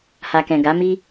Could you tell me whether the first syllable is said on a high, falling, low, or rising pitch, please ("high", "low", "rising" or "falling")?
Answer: low